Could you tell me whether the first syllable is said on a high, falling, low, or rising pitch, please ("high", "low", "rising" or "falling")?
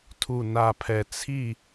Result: low